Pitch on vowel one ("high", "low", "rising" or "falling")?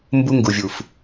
high